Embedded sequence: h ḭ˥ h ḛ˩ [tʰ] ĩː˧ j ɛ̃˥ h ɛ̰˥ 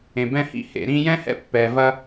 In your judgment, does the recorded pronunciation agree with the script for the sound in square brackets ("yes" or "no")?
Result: no